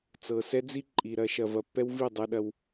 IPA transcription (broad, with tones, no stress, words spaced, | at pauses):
t͡sɤ˨sɛ˦d͡zi˦ ǃʼi˨ɾɐ˦ ʃɐ˨vɐ˨ pːɛ˦wvi˦˨ dˤɛ˦ɗɐ˦w